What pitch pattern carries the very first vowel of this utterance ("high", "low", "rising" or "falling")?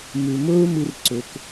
low